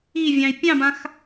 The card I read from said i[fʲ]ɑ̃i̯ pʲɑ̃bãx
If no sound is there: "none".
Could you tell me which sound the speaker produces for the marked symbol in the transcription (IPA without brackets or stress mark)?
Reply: vʲ